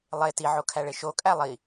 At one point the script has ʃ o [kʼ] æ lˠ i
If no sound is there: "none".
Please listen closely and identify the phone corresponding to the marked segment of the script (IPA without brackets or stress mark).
kʼ